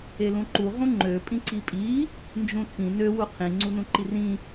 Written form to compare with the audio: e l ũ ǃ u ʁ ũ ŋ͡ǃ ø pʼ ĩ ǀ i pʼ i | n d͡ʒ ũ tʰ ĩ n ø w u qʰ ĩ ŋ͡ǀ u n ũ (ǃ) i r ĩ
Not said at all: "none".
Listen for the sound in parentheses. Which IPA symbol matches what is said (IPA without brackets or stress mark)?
ǃ